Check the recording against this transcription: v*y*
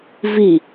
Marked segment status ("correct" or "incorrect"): incorrect